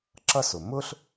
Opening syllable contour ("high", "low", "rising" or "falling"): high